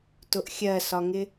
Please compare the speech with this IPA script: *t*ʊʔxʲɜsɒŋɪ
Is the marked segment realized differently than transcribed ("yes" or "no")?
no